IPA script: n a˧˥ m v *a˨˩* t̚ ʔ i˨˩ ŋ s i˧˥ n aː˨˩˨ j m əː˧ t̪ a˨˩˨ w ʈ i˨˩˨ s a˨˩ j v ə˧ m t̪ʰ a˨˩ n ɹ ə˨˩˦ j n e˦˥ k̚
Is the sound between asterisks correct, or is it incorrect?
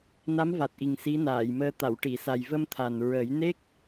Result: correct